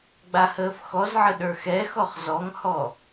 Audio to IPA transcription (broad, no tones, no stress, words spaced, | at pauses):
ɡ͡bahəːfxɔzʕə ɗə˞xɛxɔχ zɔŋhɔ